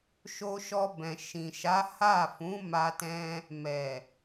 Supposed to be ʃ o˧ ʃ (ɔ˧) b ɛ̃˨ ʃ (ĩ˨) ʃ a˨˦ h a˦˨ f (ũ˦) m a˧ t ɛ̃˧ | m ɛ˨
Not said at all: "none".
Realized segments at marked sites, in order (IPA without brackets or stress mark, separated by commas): ɔ˧, ĩ˨, ũ˨˦